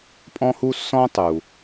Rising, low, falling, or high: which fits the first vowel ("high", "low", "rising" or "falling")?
high